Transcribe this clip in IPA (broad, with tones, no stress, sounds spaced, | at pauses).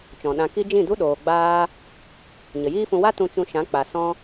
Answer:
t͡ʃ ɔ̃˨ ɗ ã˧ k i˦ d͡ʒ ĩ˦˨ d u˦ ɗ oː˨ ɡ͡b aː˧ | ɲ ə˨ j iː˦ f ũ˧ w a˦ t ũ˧ t͡ʃ ũ˧ ʃ ã˨˦ k͡p a˨ s ɔ̃˧